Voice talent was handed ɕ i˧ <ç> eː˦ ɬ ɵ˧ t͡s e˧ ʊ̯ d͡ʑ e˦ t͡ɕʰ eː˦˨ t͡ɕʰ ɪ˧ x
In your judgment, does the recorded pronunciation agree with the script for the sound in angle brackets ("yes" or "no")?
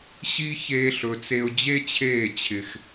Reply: yes